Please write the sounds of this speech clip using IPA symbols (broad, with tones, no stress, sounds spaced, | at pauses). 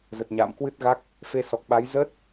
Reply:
z ə˨˩ t̚ ɲ a̰ː˧˨ m k w ɨ˦˥ t̚ ɣ a˦˥ k̚ | f e˧ s ɔ˨˩ k̚ ɓ a˨˦ j z əː˦˥ t̚